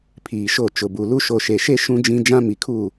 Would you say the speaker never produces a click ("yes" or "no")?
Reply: yes